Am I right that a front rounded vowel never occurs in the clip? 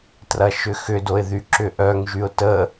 no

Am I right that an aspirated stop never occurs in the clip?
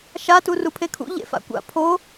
no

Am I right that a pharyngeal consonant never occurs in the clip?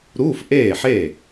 no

